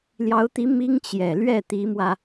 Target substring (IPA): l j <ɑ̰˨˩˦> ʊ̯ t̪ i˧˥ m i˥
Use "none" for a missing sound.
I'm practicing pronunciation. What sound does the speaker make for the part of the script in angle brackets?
ɑ˧˥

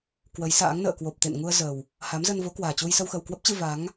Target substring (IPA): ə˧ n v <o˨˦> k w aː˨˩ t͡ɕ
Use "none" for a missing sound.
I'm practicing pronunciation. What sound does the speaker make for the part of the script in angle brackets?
o˨˦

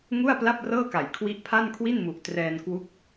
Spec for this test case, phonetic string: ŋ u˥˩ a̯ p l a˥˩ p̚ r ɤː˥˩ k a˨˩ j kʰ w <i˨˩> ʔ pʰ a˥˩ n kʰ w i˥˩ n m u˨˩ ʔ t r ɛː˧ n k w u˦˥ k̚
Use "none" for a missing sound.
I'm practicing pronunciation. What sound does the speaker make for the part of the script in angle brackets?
i˦˥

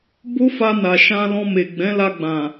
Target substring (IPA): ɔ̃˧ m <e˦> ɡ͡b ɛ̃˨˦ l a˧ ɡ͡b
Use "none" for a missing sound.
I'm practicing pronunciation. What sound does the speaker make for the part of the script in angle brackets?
e˨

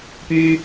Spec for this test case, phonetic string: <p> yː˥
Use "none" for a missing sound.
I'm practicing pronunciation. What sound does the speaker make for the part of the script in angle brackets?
p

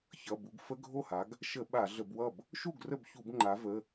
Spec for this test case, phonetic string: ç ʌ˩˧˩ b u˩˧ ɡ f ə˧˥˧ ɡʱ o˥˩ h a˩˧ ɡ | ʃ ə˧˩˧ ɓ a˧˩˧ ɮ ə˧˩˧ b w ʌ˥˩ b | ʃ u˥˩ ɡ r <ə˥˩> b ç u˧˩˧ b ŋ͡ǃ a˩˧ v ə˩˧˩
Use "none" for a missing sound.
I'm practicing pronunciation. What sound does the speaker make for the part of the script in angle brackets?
ə˥˩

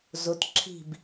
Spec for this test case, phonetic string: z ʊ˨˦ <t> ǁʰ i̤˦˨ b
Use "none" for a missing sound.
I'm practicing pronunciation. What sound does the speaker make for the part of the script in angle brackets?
t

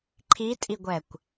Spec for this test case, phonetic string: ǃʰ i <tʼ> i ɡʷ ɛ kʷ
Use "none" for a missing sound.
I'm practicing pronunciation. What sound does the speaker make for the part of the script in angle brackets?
tʼ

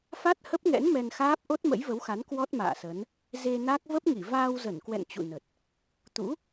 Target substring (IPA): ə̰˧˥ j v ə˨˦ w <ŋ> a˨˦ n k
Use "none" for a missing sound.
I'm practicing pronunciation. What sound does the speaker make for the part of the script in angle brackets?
x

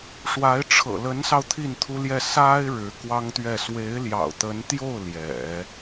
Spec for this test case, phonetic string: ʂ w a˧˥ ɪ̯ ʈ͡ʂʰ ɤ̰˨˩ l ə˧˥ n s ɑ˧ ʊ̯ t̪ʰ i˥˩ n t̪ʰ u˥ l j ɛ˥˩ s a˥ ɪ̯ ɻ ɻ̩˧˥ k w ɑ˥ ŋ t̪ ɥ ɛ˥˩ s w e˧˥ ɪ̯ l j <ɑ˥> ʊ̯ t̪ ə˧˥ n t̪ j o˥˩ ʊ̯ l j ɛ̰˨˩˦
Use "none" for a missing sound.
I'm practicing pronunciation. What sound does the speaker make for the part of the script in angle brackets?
ɑ̰˨˩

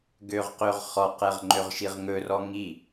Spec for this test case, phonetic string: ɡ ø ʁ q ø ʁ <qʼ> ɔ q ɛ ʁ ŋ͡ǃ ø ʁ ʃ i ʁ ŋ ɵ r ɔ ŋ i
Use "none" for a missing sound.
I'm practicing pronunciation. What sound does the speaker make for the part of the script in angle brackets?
χ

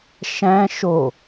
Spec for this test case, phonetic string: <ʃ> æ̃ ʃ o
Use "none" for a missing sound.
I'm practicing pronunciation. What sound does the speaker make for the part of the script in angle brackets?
ʃ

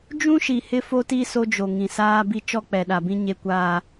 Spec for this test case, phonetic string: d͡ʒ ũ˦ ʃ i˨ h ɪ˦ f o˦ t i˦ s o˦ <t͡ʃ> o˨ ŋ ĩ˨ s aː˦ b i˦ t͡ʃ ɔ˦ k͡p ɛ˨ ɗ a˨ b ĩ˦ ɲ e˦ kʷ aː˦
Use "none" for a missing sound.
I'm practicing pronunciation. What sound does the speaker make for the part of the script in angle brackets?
d͡ʒ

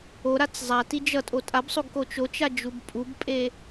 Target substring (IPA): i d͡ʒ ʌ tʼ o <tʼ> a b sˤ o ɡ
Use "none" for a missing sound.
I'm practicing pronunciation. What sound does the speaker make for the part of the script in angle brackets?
tʼ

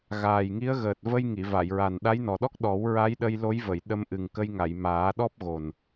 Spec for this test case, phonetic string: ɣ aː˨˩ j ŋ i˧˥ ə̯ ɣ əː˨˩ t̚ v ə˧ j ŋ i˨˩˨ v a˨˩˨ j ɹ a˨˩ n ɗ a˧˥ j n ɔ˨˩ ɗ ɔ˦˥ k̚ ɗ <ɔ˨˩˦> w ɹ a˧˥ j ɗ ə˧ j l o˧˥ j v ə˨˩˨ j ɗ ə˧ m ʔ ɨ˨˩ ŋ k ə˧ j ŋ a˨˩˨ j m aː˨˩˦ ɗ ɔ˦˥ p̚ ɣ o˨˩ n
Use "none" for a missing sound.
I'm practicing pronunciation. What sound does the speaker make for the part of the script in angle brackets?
ɔ˨˩˦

